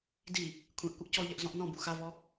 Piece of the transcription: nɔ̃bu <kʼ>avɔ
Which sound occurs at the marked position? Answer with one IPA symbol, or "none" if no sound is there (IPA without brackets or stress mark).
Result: x